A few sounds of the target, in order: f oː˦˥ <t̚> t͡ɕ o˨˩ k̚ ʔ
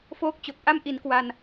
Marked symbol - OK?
no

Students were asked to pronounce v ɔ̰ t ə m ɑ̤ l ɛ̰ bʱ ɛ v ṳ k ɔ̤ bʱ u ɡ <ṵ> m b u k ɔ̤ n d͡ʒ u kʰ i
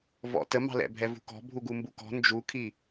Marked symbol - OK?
no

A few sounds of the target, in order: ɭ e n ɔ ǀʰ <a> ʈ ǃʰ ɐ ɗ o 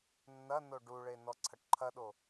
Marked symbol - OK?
no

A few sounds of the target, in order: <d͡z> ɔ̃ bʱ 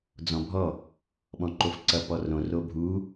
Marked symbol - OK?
yes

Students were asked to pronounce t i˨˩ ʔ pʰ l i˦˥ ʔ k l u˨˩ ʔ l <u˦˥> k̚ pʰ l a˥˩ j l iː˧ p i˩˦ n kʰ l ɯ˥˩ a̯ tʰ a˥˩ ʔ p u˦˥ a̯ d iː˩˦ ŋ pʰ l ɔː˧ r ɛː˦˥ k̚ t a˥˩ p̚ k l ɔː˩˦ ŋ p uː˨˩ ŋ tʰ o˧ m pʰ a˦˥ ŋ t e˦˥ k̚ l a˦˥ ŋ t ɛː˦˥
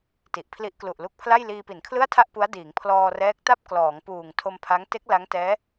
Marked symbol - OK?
yes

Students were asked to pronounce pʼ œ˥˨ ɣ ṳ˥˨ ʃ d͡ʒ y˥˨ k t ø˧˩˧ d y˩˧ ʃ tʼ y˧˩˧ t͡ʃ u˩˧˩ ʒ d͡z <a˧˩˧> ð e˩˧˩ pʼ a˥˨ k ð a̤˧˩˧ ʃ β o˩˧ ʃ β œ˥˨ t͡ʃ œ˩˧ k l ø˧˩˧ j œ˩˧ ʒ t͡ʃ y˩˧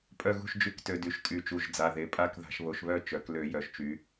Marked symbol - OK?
no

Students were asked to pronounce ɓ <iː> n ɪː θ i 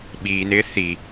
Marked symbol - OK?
yes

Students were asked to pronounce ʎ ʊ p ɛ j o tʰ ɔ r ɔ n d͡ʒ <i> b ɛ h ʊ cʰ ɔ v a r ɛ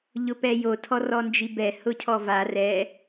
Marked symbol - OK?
yes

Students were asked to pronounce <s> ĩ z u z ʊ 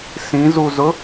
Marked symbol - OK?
yes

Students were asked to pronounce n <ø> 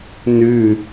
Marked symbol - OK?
no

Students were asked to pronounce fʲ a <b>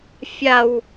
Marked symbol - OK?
no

